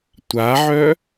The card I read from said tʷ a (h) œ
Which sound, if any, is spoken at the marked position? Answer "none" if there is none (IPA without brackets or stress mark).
ʕ